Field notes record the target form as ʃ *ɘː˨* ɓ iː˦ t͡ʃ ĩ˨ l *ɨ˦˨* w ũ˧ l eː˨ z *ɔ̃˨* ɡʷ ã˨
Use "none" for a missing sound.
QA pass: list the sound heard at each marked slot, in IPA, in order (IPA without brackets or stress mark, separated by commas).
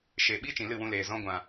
eː˨, ɨ˦˨, ɔ̃˧